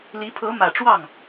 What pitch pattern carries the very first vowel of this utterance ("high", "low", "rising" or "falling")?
rising